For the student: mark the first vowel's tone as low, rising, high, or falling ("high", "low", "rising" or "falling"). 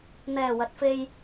low